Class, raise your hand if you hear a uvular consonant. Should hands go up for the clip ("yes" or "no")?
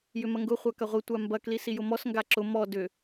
yes